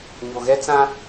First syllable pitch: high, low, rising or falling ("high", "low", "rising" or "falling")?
low